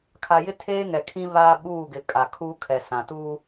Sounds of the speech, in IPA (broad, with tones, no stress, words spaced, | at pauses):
kʰa˨jɪ˦ tʰeː˦ŋɛ˨kʰĩ˦ βaː˦ ɓuː˦˨ɡɪ˨ kʼa˨kʰu˦ kʰɛ˨sã˨ tuː˦